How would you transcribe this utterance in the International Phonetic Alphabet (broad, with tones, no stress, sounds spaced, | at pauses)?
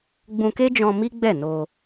ɡ͡b ũ˧ k e˦ d͡ʒ ɔ̃˧ m i˦ ɡ͡b ɛ˦˨ n o˧